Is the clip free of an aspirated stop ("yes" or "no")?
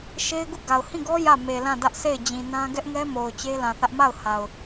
yes